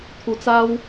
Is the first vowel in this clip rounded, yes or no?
yes